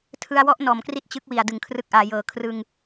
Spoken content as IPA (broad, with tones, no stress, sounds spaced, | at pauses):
tʰ ɯ˧ a̯ w ɔ˦˥ ʔ n ɔː˩˦ m k r i˦˥ t̚ t͡ɕ ɯ˦˥ k̚ w i˨˩ a̯ d ɯ˩˦ ŋ kʰ r ɯ˦˥ k̚ ʔ aː˩˦ j ɤː˨˩ kʰ r ɯ˧ ŋ